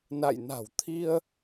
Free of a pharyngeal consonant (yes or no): yes